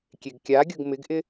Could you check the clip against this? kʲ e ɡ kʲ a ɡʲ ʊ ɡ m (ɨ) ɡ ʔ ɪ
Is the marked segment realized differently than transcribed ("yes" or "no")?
yes